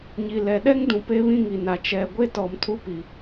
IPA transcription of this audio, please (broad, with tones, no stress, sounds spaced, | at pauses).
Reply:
ɲ i˨ l ɛ˨ ɗ ɛ˦ ŋ d ũ˨ p e˦ β ĩ˦ ŋ i˨ n a˨ t͡ʃ ɛ˨ ɡʷ e˦ t ɔ˨ m tʰ u˦ p i˨